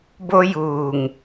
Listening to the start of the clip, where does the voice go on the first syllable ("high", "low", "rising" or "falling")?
high